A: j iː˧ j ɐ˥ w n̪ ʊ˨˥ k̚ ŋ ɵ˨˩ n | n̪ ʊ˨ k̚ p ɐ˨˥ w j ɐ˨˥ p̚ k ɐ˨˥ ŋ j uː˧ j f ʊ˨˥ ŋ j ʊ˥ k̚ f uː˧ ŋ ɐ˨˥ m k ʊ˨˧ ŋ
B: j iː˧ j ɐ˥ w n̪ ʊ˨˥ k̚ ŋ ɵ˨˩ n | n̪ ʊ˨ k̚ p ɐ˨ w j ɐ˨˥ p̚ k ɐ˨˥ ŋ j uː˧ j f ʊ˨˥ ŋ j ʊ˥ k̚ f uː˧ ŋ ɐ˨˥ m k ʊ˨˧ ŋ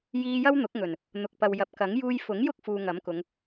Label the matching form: B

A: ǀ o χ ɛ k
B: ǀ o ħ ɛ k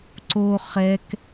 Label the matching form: A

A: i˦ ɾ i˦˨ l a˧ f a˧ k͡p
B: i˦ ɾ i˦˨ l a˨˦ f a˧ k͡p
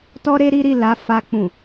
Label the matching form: B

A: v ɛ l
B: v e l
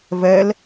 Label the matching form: A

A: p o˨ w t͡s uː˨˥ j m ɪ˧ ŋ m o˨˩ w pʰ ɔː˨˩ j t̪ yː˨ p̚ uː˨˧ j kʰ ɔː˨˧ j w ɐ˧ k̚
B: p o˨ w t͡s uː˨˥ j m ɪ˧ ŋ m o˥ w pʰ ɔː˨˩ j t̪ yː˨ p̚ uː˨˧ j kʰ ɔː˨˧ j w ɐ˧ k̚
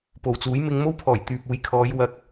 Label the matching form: B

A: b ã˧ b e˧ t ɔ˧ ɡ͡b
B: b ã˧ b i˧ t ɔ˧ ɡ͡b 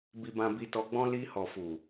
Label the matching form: B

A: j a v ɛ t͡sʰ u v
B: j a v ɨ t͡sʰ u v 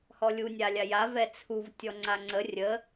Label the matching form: A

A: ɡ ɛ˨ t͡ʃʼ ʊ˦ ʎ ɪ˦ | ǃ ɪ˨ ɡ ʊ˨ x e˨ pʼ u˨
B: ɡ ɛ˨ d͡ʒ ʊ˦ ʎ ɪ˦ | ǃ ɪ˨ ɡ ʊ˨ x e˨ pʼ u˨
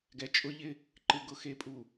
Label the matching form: A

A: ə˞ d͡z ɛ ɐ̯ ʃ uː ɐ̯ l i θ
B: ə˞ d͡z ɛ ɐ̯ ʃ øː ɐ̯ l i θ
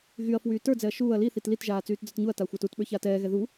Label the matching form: A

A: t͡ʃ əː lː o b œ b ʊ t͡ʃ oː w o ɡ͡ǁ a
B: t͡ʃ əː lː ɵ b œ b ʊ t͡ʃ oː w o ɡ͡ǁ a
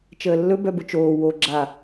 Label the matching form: B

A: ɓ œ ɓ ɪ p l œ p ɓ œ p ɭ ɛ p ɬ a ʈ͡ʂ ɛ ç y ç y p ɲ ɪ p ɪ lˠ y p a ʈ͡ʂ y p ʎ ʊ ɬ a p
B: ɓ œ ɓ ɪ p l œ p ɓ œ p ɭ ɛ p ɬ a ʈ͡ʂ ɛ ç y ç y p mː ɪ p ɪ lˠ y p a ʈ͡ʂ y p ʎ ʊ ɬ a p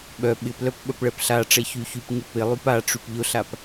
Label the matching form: A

